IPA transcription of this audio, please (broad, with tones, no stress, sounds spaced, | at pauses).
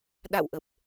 ɗ a̰˧˨ w ʔ ə˨˩ p̚